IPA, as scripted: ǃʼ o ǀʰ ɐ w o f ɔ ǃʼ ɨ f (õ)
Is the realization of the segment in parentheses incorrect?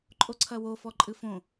no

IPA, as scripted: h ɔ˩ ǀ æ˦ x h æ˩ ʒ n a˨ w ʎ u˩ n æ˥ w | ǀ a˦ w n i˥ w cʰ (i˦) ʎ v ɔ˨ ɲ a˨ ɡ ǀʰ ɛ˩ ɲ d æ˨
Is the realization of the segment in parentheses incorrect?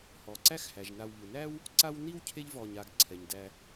yes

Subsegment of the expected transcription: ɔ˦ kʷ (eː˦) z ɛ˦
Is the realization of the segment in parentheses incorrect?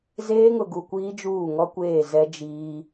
yes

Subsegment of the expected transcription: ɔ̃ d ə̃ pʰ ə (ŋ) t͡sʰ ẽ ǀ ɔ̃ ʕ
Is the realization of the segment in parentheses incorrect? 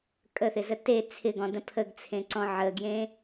yes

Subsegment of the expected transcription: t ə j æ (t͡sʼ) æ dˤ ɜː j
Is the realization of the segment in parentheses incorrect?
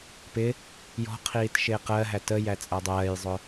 no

